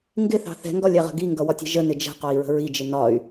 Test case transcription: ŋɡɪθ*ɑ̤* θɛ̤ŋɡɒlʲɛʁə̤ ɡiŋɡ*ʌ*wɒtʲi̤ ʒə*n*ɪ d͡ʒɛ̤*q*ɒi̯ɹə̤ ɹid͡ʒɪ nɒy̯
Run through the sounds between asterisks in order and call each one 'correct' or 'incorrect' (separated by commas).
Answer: correct, correct, correct, correct